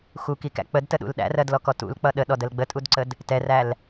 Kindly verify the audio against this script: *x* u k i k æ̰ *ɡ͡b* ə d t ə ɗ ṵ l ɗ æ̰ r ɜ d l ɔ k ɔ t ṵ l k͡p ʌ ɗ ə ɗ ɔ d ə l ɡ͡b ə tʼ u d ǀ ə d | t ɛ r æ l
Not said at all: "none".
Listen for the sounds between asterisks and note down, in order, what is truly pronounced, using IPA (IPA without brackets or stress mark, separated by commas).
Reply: x, k͡p